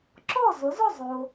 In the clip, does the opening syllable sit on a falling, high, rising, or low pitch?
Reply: falling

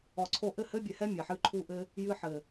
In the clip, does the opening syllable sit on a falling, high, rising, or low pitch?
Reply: low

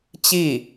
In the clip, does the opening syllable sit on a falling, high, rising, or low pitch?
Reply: falling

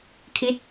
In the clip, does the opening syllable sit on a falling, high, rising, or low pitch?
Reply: falling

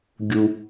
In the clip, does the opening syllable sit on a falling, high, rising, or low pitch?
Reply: low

